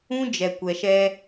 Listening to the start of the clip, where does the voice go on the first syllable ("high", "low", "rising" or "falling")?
high